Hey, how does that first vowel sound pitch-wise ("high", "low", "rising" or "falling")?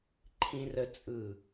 high